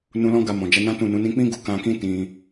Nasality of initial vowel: nasal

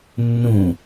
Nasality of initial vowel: nasal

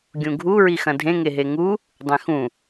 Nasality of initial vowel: nasal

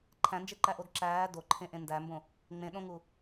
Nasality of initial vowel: nasal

